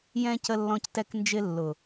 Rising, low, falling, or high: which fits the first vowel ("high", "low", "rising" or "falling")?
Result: high